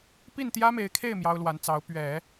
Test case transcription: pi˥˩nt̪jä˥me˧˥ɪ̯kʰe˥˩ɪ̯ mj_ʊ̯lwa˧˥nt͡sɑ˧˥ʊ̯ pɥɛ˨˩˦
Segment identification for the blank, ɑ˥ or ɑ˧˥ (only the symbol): ɑ˥